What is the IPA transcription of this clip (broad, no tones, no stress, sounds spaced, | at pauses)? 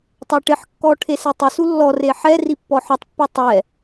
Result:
tˤ a ʈ ɪ ħ kː ɔ ʈʰ e s ɛ tˤ ɪ s u lː ɔ r e ħ ɛ r i pː ɔ ħ ɔ tˤ pː ɔ tˤ ɛ